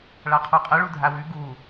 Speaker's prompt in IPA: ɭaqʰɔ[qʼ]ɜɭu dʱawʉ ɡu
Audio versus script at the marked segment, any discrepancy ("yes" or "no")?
no